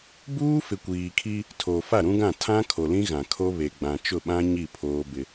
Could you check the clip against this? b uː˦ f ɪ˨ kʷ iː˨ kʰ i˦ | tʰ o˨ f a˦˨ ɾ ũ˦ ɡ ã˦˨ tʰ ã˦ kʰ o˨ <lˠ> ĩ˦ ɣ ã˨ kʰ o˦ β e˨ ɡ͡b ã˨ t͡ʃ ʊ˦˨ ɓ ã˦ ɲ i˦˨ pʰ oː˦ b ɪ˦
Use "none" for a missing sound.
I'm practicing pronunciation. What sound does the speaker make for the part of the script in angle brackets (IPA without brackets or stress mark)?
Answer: l